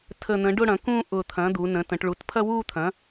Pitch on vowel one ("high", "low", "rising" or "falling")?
low